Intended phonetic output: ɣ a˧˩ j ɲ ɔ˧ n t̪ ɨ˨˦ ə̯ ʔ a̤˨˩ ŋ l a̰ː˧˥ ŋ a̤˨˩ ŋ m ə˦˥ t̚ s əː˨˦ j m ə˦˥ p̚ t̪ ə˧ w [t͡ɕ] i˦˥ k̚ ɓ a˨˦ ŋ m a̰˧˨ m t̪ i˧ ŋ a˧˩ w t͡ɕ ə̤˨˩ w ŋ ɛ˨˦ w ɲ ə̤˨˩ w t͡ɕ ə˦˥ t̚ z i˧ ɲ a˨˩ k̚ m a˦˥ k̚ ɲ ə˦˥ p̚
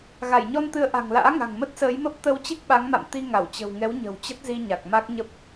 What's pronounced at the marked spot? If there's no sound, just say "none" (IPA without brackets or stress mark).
t͡ɕ